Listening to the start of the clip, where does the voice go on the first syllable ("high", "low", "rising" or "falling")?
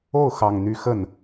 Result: falling